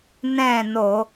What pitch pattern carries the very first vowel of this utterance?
falling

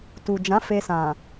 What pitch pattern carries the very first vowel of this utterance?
low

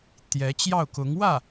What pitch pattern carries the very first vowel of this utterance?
rising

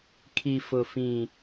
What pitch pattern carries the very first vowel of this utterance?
low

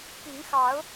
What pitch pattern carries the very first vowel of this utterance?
rising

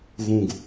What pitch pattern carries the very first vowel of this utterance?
low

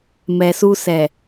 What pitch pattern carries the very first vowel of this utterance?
low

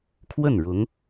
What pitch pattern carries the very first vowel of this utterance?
falling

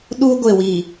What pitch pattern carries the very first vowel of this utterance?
high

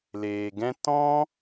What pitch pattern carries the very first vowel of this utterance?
low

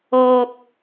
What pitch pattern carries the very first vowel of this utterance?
low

